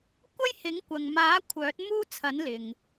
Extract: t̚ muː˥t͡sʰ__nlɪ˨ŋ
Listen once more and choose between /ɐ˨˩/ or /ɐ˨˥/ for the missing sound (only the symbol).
ɐ˨˥